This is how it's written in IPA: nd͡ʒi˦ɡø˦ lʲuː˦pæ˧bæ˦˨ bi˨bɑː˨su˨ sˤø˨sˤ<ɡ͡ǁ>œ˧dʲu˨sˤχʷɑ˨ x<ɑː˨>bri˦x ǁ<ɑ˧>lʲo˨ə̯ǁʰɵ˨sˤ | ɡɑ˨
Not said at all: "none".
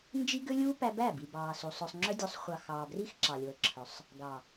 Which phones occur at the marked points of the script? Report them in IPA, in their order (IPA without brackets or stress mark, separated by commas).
ŋ͡ǁ, ɑː˨, ɑ˨